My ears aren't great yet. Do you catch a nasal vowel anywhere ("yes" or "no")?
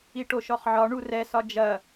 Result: no